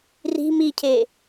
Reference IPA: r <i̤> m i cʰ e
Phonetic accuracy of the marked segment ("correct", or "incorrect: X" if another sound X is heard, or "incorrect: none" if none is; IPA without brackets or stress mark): correct